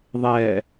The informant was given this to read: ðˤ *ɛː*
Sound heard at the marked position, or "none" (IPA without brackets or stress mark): ɛː